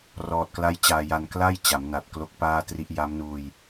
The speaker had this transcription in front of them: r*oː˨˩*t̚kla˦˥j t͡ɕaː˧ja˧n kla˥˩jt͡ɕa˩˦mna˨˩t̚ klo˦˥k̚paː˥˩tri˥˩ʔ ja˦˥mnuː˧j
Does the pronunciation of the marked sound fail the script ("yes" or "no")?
yes